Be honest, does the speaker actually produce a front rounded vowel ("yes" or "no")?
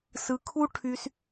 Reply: yes